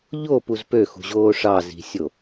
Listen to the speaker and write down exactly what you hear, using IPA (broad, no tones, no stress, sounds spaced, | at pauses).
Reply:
ʎ o p u z p ø x ṳ ʑ oː ʂ ɑ z i̤ sʲ o